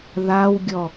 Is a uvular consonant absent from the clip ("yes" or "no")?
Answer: yes